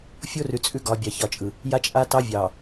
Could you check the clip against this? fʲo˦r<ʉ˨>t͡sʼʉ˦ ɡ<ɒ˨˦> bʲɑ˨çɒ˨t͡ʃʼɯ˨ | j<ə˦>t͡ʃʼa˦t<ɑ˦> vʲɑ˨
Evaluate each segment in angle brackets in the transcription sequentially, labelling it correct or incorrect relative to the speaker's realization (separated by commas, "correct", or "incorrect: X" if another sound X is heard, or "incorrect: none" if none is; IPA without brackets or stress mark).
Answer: correct, correct, incorrect: a˦, correct